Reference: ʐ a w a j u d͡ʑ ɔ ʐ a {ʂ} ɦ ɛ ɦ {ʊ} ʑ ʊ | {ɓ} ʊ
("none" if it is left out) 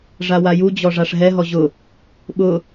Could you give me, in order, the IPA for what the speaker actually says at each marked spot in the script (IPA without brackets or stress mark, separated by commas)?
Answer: ʂ, ɔ, ɓ